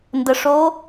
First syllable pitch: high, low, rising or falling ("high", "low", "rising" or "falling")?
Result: low